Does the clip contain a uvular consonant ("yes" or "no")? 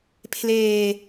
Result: no